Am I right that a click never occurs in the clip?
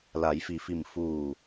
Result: yes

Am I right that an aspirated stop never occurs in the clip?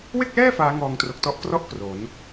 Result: yes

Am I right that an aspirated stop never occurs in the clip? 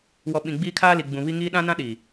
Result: no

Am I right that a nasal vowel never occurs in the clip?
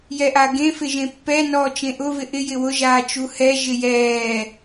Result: no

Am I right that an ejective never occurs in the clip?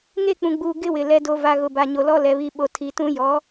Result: yes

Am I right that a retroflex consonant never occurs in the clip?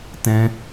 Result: yes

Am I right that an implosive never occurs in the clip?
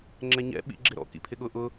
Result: no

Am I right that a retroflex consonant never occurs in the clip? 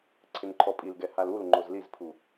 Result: yes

